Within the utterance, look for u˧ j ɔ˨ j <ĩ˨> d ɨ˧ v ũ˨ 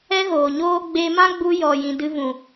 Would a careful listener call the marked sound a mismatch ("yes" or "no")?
no